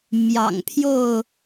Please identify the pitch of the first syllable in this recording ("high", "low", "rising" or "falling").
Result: low